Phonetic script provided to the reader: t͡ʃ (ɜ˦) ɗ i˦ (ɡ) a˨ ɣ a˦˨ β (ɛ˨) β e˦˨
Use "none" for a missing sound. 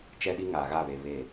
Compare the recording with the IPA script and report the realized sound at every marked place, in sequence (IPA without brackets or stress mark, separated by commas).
ɛ˦, ŋ, e˨